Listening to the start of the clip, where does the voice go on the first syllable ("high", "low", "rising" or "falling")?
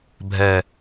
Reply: low